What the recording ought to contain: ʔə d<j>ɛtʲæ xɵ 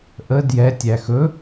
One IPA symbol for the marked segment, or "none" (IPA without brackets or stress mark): j